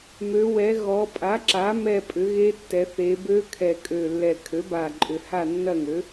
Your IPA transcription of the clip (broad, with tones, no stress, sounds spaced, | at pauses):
m ø˩˧ w ɛ˩˧ ɣ ɔ˩˧ pʼ a˩˥ ǁ a˩˥ m ɛ˦˨ pʼ ʏ˩˥ ɣ e˦˥ tː ɛ˩˧ θ e˩˧ b ø˦˥ kʰ ɛ˨˩ kʼ ø˨˩ lː ɛ˨˩ kʰ ø˩˥ b a˨˩ ǃʼ ʏ˨˩ h a˦˨ nː ɐ˦˨ ŋ ø˩˥